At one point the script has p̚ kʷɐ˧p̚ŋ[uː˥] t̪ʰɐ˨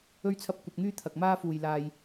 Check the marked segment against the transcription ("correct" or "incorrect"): incorrect